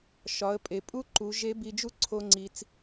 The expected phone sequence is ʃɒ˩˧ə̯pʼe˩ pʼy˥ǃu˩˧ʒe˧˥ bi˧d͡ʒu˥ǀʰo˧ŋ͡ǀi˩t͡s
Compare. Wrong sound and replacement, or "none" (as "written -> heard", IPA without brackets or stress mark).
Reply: y˥ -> u˥